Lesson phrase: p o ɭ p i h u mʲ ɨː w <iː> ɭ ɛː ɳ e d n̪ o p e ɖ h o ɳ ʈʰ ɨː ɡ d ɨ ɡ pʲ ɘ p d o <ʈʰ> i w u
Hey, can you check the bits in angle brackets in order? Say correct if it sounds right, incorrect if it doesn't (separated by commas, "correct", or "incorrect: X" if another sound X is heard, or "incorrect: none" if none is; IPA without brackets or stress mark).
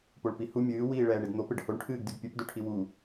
correct, correct